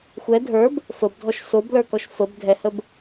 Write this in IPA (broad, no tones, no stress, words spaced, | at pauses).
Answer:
xʷɛ dʱə˞b | fəbdʱɔʃ soblə˞kɔʃ fəb dʱɛhəb